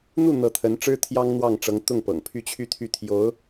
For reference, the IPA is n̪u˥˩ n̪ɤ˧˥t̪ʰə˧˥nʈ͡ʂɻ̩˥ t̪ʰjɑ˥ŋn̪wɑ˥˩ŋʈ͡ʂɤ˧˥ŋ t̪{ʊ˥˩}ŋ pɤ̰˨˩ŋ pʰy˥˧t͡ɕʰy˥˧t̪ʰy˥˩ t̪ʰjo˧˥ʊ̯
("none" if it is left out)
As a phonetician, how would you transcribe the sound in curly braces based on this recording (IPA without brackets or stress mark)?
ʊ˥˩